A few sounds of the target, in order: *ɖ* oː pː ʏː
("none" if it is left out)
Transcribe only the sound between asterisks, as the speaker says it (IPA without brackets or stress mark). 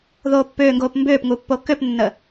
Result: ð